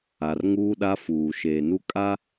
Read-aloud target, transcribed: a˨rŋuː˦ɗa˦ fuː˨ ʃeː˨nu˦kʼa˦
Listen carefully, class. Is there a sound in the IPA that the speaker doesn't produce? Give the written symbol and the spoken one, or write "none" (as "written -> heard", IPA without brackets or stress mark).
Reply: none